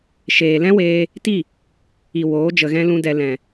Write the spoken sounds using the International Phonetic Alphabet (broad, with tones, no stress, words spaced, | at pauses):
ʃeː˨lɛ̃˦weː˧ | ti˦˨ | i˨ woː˨˦ d͡ʒə˨ɣɛ̃˧ lũ˦dɛ˧ lɛ̃˨